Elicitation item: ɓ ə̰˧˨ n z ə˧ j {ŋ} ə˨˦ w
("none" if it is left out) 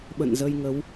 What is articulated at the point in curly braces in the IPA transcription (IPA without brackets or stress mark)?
ŋ